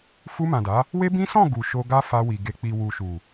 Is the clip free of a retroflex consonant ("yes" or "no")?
yes